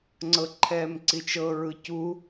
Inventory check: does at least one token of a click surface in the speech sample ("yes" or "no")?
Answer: yes